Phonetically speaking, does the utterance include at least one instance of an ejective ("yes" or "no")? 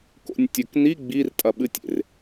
yes